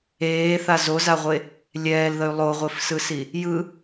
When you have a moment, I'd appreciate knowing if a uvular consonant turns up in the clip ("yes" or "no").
yes